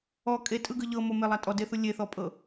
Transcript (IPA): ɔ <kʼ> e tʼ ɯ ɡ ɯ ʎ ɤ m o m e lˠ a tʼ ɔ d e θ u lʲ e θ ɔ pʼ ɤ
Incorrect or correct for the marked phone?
correct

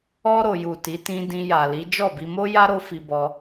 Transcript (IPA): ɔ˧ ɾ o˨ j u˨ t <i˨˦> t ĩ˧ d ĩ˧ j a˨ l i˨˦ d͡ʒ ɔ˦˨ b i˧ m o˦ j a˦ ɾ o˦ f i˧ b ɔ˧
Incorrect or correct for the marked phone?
correct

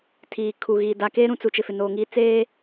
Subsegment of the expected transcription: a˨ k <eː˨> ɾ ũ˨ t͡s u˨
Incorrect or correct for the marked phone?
incorrect: eː˦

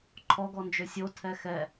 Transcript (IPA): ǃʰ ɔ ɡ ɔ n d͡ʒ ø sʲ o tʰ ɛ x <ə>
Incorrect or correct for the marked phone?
incorrect: ɛ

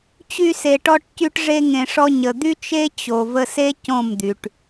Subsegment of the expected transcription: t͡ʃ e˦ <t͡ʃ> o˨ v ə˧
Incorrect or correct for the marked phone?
incorrect: t͡ɕ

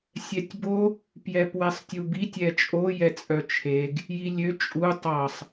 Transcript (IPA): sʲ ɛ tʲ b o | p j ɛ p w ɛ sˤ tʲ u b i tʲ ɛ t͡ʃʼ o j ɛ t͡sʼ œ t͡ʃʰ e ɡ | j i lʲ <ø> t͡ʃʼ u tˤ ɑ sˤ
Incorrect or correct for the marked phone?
correct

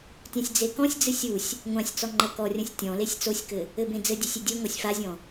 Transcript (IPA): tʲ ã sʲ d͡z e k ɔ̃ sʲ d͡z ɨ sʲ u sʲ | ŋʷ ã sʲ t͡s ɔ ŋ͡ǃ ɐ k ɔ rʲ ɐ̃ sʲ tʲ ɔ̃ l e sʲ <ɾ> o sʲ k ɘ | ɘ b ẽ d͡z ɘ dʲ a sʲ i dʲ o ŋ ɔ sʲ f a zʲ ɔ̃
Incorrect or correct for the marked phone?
incorrect: t͡s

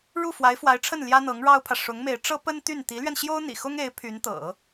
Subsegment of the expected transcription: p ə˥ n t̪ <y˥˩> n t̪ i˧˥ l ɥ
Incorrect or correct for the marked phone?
correct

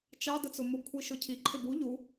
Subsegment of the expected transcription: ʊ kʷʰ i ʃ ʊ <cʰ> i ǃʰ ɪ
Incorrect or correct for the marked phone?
correct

